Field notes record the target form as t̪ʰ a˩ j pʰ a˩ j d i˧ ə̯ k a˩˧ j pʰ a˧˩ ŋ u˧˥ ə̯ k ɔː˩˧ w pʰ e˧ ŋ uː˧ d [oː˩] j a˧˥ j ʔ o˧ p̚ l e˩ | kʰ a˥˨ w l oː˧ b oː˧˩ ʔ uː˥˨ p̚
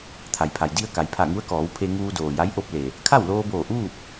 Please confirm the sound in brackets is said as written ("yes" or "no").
yes